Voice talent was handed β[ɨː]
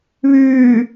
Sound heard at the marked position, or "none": yː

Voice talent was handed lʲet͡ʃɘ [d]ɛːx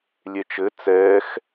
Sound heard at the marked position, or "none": t͡s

